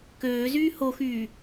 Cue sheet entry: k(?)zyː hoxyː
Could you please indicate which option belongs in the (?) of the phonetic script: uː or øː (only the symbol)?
øː